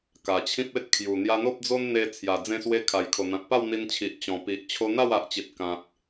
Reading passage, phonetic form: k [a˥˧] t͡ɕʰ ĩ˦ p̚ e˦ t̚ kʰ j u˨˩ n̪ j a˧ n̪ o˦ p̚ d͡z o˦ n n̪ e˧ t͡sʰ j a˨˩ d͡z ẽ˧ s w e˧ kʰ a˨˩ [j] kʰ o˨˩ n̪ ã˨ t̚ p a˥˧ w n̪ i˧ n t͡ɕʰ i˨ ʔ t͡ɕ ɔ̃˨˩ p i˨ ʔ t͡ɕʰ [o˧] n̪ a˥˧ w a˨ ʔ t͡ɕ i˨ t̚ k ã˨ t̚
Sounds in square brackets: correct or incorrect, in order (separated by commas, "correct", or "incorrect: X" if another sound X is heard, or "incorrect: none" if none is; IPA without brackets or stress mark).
incorrect: a˨˩, correct, correct